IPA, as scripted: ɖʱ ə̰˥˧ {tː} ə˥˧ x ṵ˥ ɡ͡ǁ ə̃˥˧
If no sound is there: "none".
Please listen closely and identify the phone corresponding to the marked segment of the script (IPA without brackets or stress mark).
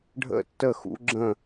tː